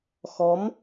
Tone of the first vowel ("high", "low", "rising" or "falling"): rising